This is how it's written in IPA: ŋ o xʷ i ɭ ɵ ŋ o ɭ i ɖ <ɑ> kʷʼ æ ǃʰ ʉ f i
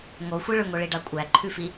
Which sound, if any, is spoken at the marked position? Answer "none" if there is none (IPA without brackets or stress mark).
ɑ